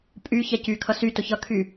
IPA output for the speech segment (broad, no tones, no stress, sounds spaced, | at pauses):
pʼ y ç ɛ c y kʰ ʌ s y t ʊ ç ʌ kʰ y